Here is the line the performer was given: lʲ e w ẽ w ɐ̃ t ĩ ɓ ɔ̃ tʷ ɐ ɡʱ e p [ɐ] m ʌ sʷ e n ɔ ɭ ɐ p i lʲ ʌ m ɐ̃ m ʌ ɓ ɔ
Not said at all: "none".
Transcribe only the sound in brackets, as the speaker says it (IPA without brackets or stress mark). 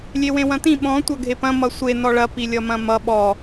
ɐ̃